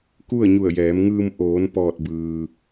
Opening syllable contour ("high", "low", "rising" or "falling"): falling